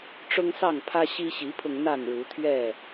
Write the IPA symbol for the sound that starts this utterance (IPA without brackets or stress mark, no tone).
ʈ͡ʂ